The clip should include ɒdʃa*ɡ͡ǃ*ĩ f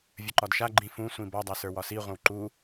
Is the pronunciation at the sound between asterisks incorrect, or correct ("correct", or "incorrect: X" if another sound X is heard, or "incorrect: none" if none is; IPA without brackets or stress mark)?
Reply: correct